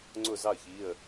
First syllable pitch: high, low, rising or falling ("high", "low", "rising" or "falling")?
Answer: falling